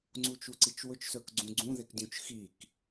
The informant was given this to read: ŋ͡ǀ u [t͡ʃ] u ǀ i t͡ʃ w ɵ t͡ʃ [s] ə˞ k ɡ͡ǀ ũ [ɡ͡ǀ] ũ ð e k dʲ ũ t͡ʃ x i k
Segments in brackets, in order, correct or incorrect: correct, correct, correct

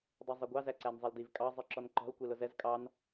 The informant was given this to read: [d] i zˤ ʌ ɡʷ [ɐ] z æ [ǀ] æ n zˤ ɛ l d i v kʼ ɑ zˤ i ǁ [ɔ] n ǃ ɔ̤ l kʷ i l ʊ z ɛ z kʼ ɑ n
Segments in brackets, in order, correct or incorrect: incorrect: dˤ, incorrect: ɑ, correct, correct

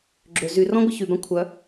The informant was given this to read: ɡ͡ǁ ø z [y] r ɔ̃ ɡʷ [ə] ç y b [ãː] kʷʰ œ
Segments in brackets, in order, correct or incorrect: correct, correct, incorrect: ã

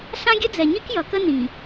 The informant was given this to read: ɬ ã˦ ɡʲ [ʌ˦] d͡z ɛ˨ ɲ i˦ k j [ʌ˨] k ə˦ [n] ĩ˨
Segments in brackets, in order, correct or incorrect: incorrect: ə˦, correct, correct

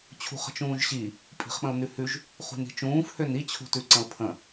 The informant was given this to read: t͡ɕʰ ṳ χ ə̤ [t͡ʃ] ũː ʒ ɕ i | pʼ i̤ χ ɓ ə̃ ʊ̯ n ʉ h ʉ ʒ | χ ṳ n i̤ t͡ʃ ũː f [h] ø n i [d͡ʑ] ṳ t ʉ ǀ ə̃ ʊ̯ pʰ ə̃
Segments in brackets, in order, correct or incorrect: correct, correct, incorrect: t͡ɕʰ

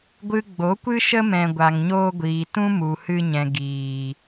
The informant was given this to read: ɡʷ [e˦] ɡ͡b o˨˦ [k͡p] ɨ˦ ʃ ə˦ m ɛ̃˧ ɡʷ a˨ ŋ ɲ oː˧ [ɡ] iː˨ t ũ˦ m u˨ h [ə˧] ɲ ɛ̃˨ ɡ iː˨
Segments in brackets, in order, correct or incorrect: incorrect: ɨ˦, incorrect: kʷ, incorrect: ɡʷ, incorrect: ɨ˧

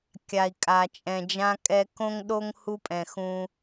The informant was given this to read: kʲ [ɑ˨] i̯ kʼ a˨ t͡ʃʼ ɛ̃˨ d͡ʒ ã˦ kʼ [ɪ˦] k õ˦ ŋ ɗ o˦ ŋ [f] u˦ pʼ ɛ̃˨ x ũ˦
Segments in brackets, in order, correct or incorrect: incorrect: a˨, incorrect: ɛ˦, incorrect: h

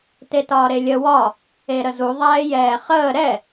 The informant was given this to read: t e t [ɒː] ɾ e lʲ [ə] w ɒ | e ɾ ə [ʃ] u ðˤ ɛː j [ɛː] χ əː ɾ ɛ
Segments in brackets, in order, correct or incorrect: correct, correct, incorrect: z, correct

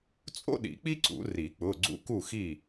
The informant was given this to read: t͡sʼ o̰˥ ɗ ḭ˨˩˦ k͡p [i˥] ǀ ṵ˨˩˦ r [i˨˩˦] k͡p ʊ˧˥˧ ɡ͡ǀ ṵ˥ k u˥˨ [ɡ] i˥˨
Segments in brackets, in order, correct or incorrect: correct, correct, incorrect: x

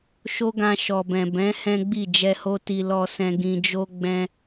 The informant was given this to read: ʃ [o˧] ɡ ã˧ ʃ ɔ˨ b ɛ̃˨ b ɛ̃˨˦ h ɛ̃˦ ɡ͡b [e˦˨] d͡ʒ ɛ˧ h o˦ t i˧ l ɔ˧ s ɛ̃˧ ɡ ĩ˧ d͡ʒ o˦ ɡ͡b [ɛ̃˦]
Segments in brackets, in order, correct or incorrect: incorrect: o˦, incorrect: i˦˨, correct

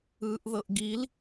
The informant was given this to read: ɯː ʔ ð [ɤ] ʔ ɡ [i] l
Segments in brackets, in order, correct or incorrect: correct, correct

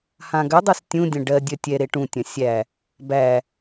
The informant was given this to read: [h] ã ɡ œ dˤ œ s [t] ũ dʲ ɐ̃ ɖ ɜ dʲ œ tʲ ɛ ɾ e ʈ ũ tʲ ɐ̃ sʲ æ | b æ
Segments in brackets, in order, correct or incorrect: correct, incorrect: tʲ

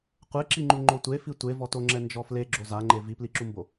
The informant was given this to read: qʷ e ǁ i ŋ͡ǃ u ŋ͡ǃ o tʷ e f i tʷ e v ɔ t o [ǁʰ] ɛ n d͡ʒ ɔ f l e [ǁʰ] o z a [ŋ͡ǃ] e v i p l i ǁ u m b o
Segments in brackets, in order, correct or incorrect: incorrect: ŋ͡ǁ, incorrect: ɡ͡ǁ, correct

